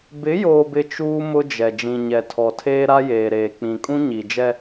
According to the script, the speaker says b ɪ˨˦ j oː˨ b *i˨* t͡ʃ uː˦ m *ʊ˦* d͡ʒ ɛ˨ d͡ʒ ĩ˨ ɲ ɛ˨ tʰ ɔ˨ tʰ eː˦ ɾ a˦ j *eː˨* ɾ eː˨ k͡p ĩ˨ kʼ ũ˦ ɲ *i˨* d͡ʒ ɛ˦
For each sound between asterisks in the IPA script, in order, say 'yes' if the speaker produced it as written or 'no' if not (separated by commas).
no, yes, yes, yes